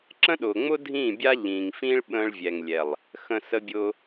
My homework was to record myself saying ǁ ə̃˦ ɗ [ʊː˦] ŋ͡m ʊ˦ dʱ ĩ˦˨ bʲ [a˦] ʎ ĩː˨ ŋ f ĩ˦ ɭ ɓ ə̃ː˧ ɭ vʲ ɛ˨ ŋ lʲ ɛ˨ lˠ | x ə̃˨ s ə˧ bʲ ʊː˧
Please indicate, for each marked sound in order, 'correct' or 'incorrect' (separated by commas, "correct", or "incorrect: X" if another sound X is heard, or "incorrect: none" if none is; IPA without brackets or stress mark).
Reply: incorrect: ʊː˨, correct